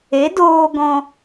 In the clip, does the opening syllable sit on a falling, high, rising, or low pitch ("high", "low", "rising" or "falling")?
rising